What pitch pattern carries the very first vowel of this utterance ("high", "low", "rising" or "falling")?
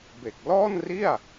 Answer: low